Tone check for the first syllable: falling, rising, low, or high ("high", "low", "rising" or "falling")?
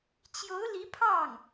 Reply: rising